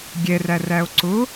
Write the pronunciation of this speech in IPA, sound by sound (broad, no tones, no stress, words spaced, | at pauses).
ɡʲɛrær æo̯ǀʊ